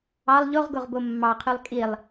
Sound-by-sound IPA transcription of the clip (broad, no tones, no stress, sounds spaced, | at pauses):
ɑ lˠ ʎ o ʁ ɡ o ʁ b o mː ɑ qʰ y lˠ kʼ i lˠ